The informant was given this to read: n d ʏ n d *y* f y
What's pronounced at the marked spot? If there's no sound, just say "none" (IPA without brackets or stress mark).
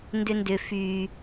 ʏ